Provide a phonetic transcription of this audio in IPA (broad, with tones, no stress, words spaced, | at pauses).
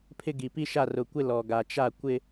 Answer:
pʰɪ˦ ɡi˨pi˦ ʃa˦˨rʊ˨kʷɪ˦ lɔ˨ɡa˨ t͡ʃa˦˨ kʷɪ˦